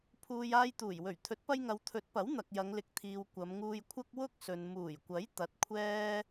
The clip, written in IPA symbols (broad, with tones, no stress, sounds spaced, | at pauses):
pʰ uː˨ j aː˧ j t̪ uː˨˩ j w ɵ˨˩ ɥ t̪ʰ ɵ˨˥ t̚ p ɐ˧ j ŋ ɐ˨˧ w t̪ʰ ɵ˨˥ t̚ p ɐ˨˥ w n̪ ɐ˨ k̚ j ɐ˨˧ ŋ l ɪ˨ k̚ t̪ʰ iː˨ w kʷ ɐ˨˧ m ŋ uː˧ j kʷʰ ɐ˥ k̚ w ʊ˥ k̚ s ɵ˨ n m uː˨˩ j kʷ ɐ˨˥ j t̪ ɐ˨˥ t̚ kʷʰ ɛː˥